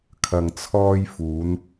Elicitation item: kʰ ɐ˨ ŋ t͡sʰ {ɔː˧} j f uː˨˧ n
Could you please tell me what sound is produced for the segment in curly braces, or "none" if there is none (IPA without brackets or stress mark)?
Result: ɔː˧